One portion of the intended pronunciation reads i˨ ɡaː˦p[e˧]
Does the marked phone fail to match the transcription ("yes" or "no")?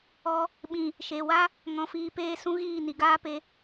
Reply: no